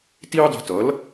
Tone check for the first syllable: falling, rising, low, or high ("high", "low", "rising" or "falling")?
high